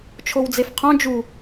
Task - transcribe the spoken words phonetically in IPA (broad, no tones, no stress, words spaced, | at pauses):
t͡ʃʰowd͡zefqʰõ d͡ʒu